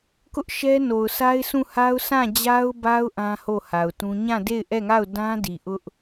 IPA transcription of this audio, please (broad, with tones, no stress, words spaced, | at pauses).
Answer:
kʊ˦ʔ ʃɛ˦no˨ʊ̯sʰa˦ɪ̯sʰũ˦˨ ha˦ʊ̯sʰã˦˨ d͡ʑa˦ʊ̯ba˦ʊ̯ ʔã˦ho˦˨ha˨ʊ̯tũ˦ ɲã˦˨de˦˨ɪ̯ʔɛ˦˨ŋa˦˨ʊ̯ dã˦di˨ ʔʊ˦ʔ